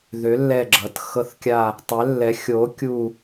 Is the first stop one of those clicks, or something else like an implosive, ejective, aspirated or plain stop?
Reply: click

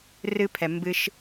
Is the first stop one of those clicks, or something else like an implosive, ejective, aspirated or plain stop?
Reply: aspirated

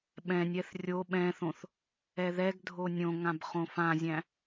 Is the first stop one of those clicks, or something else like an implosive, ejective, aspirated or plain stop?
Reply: implosive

